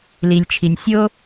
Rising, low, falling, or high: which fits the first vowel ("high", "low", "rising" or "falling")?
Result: low